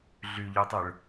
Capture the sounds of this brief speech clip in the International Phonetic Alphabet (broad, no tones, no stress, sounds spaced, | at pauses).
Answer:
ɮ y ʎ ø tˤ ɯ ɭ